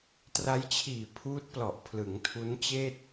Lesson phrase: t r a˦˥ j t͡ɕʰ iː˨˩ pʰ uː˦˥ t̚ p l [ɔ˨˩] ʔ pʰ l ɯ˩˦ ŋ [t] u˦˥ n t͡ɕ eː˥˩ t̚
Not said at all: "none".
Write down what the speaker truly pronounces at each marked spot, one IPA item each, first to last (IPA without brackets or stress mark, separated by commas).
ɔ˨˩, tʰ